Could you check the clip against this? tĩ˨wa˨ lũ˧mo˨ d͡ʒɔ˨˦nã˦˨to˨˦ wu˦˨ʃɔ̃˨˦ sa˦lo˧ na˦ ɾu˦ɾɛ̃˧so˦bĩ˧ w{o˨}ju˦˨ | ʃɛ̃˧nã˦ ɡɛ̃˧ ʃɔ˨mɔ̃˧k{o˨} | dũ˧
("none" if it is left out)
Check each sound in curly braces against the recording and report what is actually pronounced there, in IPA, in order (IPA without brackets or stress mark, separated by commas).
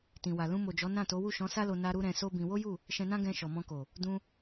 o˦, o˨